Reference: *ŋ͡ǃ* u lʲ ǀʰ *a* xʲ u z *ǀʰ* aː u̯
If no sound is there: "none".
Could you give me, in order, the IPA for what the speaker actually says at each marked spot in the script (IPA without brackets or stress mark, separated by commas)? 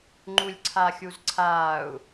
ŋ͡ǃ, a, ǀʰ